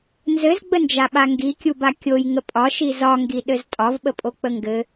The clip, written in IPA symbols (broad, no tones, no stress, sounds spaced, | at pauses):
n z ɘ z ɡ͡b ə n d͡ʒ a ɓ a ŋ ɡ i kʲ u b a kʲ o j ŋ ə pʼ ɒ ʃ i z ɒ ŋ ɡ i ɗ ɘ z tʼ ɒ v ɓ ə pʼ o k͡p ə ŋ ɡ ɘ